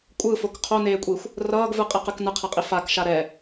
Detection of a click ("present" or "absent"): absent